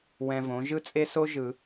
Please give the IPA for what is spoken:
wɛ̃˧võ˩˥ ʒɯ˥t͡sʼe˥so˥ ʒɯ˨˩˦

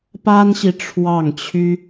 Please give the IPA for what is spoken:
pa˥nɕi˨ ʈ͡ʂʰwɑ˥˩ŋt͡ɕʰy˥

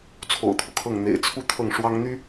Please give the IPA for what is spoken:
t͡sʰo̰˨˩ʊ̯t̪ʰu˦kʰɤ˥˩ŋ n̪ḛ˨˩ɪ̯t͡sʰu˥˧ t̪ʰɤ˥˩ŋʂwɑ˥ŋn̪y˥

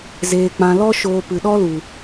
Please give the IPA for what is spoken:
zeː˧k͡pã˧ lɔ˦ ʃoː˧ pɨ˨ɗɔ˦lu˨

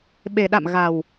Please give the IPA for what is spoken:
ɓe˨˩ ɗa̰˧˨mɣa˨˩w

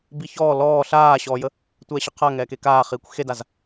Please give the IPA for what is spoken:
biçɔː lɔː ɬaːɕɔːjə | tʷɛːɕəqʰa ŋɛːkekaːχiːkʷ xedaz

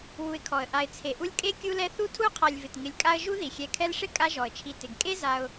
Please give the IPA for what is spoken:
wu˨ɪ̯kʰɔ˩ə̯ʔa˨ɪ̯ t͡sʰe˩ʔu˦lʲkʼe˥ kʲu˦lɛ˦ θu˥tʰu˥qʰa˨lʲvɪ˩t ŋɪ˨lʲkʼa˦ə̯ʒu˥ ði˩xʲɛ˨kʰɛ˦lʂɪ˥ kʼa˦ʒɔ˩ə̯t͡ʃʰi˨ tɪ˩ɡkʼe˥za˨ʊ̯

